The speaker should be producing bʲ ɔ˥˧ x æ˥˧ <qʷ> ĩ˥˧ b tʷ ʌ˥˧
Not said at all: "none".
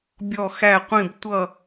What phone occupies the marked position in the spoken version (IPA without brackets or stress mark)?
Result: qʷ